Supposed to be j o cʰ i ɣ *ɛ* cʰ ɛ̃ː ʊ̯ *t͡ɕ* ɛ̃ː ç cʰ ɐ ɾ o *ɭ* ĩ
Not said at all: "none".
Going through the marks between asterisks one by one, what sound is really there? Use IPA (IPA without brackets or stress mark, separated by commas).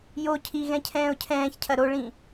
ɛ̃, cʰ, ɭ